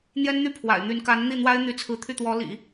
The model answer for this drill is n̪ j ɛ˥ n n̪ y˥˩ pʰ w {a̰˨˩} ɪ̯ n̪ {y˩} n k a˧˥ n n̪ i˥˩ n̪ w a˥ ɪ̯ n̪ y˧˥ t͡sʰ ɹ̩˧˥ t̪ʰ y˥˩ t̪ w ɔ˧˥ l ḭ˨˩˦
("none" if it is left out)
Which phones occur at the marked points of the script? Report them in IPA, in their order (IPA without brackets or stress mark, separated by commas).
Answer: a̰˨˩, y˧˥